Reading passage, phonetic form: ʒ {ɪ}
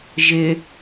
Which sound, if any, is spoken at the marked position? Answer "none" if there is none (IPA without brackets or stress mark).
ɪ